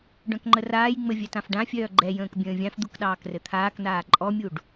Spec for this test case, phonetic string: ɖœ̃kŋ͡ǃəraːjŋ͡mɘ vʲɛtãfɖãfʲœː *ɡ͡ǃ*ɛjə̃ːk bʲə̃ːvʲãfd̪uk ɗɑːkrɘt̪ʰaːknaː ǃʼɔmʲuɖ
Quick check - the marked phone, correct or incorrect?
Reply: correct